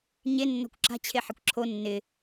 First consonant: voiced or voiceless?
voiced